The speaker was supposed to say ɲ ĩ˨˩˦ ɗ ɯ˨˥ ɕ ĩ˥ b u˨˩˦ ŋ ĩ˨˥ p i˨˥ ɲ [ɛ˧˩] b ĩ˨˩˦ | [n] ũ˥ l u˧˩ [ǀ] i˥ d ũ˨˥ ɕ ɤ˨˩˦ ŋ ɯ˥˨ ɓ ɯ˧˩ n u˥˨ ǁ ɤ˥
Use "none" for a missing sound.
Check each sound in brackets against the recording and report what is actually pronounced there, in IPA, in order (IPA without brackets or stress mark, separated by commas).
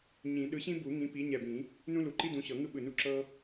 ɛ˧˩, n, ǃ